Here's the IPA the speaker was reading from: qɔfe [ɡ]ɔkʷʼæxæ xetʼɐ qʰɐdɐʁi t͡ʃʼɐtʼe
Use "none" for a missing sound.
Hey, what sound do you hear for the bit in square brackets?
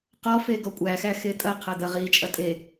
ɡ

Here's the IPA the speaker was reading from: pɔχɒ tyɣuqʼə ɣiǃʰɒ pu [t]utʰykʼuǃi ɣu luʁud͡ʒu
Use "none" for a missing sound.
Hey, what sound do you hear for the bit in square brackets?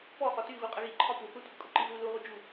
θ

